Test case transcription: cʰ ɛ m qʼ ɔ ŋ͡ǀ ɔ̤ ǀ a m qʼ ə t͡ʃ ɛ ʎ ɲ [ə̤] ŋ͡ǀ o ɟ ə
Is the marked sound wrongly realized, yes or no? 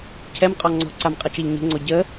no